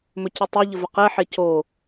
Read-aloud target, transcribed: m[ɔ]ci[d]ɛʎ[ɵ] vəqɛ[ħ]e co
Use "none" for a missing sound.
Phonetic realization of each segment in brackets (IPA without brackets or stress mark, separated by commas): ɵ, tˤ, ə, ħ